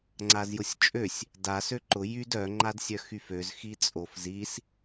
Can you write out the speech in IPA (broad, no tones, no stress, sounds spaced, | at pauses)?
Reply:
ŋ͡ǀ a z j ʊ sʲ t͡ʃʼ ø sʲ | d a s ø ǃ ʊ j y d œ ŋ͡ǃ a d sʲ œ x y f ø z x i t͡sʼ o f z i s